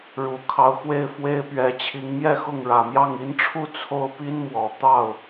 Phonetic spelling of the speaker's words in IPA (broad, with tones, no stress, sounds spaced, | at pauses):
ɻ u˨˩ kʰ ɑ˧˥ ʊ̯ x w e˥˩ ɪ̯ f w e˥ ɪ̯ p ɥ ɛ˧˥ t͡ɕʰ i˧˥ ŋ m j ɛ˥˧ x ʊ˥˩ ŋ ɻ ä˨˩ m j ɑ˥˩ ŋ i˧˥ n ʈ͡ʂʰ u˥˧ t͡sʰ o˥˩ ʊ̯ p i˥ n m w ɔ˨˩ t̪ ɑ˥˩ ʊ̯